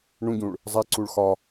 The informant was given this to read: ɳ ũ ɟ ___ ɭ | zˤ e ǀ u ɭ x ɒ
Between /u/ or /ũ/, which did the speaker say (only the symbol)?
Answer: ũ